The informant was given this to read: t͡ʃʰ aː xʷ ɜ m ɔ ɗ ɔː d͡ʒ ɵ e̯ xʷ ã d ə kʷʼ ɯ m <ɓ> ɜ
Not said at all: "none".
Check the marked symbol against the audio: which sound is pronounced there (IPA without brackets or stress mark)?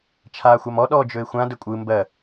b